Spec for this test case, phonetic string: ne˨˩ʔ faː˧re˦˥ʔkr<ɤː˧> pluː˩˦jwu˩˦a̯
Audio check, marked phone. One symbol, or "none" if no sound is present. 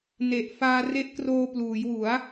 oː˧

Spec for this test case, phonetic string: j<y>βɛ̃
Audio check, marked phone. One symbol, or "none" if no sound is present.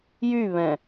y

